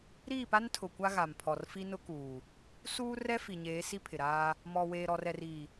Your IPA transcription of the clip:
ɾ iː˦˨ p a˦ n tʰ ʊ˨ kʷ a˦ ɣ a˨ m pʰ ɔ˨ r f i˦ n ʊ˦ k uː˨ | s uː˦ r ɛ˦ f i˨ ɲ eː˨˦ s i˦ pʰ ɪ˨ ɾ aː˦ | m ɔ˨ w eː˨ ɾ ɔ˨ r ɛ˨ r i˨

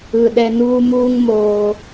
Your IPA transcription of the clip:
ɯ˩ ɗ ɛ˧ n uː˥ m uː˥ ŋ m oː˩

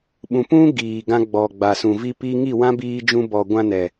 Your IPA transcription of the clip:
ɓ ũ˨ p ũ˦ ɡ iː˨ ɡ ã˧ ɡ͡b ɔ˨ ɡ͡b a˨ s ũ˨ v i˧ p iː˧ ŋ i˦˨ w ã˦ b iː˧ d͡ʒ ũ˧ b ɔ˨ ɡʷ ã˧ n ɛ˨

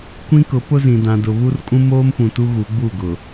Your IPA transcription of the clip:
kʷ ĩ˦ k ʊ˨˦ p ʊ˦ z ĩ˨ d ã˨ d ʊ˨ β u˦ r kʼ ũ˦ m oː˦ m p ũ˨ t u˦ ɣ u˨˦ ɡ͡b u˦˨ ɡ ʊ˨

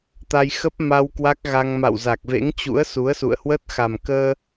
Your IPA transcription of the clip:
t̪ a˧ j x ə˦˥ p̚ m a˧ w k w a˦˥ k̚ ɣ a˧ ŋ m a̰˧˨ w z a˨˩ k̚ v ḛ˧˥ ŋ t͡ɕ ṵ˧˥ ə̯ s u˨˦ ə̯ s ṵ˧˨ ə̯ h w ə˦˥ t̚ x a˨˩ m k əː˧

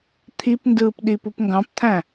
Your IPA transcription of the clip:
t̪ʰ i p n d ɯː p ɗ i p u p ŋ ɡ ɑ̃ p t̪ʰ æ̃

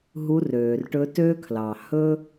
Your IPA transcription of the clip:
ɦ u˧˥ r øː˩ r ʈ ɵ˧˥ t ø˥ kʰ l ɑ˩ h ɵ˥

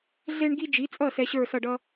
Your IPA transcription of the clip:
ɮ e˥ ɳ ɡ i˥ d͡ʒ i˩˥ t͡sʼ ʌ˥˩ s ɛ˧ ɕ ə˞˥˩ s ʌ˥˩ ɖ ʌ˥

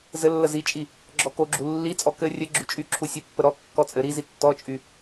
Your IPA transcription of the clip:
z ɘ lː ə z i t͡ʃʼ i | ɡ͡ǁ ɔ k o ɡ͡ǁ u lː i t͡sʼ ɔ k ɘ rʲ ɘ ɡ͡ǁ y t͡ʃʼ y ǁʰ u sʲ ɘ pː ə ɾ ɔ kː ɔ t͡sʼ ɘ ɾ i z i tː ɔ t͡ʃʼ y

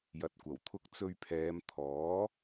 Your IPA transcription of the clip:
j ɐ˨ t̚ kʷ ɐ˨˩ w t̪ʰ ʊ˧ k̚ t͡s ɵ˧ ɥ pʰ ɛː˨˧ m t̪ʰ ɔː˨˥

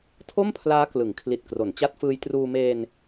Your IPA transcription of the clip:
tʰ o˥˩ m pʰ l aː˦˥ k l ɯ˩˦ ŋ kʰ l i˨˩ t̚ k r o˩˦ n t͡ɕ a˦˥ t̚ f ɯː˧ j t r uː˧ m eː˧ n

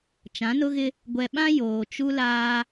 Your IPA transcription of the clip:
t͡ʃ ã˨˦ n ʊ˦ ɣ ɪ˦ | ɡʷ ɛ˨ ɓ ã˦ j oː˨ t͡ʃ u˦ l aː˦

